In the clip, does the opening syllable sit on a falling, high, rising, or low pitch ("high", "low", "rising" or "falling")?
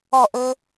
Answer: falling